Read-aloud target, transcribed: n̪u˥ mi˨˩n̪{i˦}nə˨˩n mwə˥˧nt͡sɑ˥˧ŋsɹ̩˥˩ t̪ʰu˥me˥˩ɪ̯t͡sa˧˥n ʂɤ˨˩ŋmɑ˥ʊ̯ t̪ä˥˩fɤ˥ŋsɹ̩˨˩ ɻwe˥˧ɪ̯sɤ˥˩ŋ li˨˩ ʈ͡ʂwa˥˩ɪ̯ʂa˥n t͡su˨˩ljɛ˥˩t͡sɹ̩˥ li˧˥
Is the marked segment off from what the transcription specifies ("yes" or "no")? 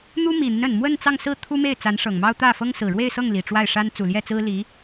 no